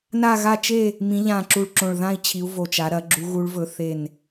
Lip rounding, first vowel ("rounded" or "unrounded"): unrounded